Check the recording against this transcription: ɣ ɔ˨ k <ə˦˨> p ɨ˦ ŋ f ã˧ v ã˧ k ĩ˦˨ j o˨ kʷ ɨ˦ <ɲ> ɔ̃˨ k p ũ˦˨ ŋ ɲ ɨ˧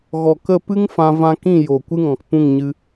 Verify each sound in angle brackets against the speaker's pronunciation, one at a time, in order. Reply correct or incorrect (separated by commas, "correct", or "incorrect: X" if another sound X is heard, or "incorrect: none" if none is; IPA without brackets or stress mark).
correct, incorrect: ŋ